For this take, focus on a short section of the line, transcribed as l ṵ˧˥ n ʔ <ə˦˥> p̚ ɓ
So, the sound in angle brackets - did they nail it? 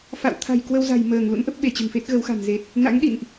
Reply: yes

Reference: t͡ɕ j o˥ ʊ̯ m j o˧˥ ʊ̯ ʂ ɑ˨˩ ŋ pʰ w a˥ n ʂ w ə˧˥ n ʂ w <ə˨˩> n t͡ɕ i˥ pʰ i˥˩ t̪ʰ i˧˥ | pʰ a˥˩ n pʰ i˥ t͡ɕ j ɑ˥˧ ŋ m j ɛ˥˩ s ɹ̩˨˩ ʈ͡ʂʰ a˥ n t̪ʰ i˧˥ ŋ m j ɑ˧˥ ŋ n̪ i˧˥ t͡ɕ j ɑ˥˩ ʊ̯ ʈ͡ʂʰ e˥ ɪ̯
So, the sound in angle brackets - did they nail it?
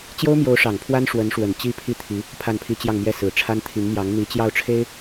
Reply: yes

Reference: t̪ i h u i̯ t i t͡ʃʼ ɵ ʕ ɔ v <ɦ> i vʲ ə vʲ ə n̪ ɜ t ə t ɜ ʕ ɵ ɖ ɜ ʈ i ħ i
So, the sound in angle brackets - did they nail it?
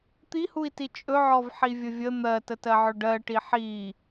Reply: no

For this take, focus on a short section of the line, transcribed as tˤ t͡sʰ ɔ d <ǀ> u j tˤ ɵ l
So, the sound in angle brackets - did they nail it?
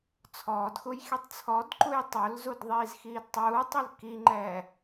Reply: no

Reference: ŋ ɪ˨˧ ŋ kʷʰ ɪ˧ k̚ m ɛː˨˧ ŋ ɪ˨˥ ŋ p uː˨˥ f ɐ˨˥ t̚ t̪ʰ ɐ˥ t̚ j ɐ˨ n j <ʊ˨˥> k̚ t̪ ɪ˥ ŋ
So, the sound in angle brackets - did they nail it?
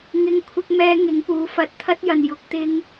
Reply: yes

